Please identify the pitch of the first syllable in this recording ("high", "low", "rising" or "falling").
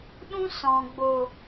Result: high